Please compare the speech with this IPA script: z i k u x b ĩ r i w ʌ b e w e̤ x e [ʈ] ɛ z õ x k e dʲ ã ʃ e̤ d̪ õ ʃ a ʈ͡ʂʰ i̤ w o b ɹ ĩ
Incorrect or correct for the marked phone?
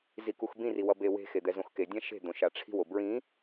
incorrect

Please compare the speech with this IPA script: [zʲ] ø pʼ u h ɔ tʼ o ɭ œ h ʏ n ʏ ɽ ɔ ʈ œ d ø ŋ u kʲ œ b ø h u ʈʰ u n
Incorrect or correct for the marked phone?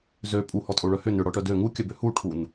incorrect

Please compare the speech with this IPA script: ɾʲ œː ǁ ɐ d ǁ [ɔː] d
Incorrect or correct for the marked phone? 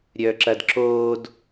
incorrect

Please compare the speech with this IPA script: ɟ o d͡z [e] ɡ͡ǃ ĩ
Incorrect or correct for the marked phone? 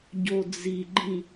incorrect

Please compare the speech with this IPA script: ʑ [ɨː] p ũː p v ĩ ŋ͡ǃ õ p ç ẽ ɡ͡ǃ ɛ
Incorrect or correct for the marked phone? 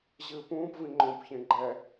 correct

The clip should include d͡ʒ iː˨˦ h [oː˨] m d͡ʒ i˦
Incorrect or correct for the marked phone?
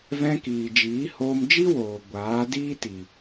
incorrect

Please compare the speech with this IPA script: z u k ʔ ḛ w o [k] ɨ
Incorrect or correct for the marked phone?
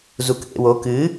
correct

